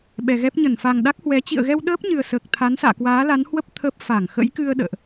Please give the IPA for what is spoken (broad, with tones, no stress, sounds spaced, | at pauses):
ɓ ɛ˨˩ ɣ ɛ˦˥ p̚ ɲ ə˧˩ n f a˨˩ ŋ ɗ a˦˥ k̚ h w ɛ˨˦ t͡ɕ ḭ˧˨ ə̯ ɣ ɛ˧ w ɗ əː˦˥ p̚ ɲ ɨ˨˩ ə̯ s əː˨˩ k̚ t̪ʰ a˨˦ n s a̰ː˧˨ k w aː˨˦ l a˨˦ n h w ə˦˥ p̚ t̪ʰ ə˦˥ p̚ f a˧˩ ŋ x ə̰˧˥ j k ɨ˧ ə̯ ɗ ə̰ː˧˨ ʔ